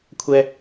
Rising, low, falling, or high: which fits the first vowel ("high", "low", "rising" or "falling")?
low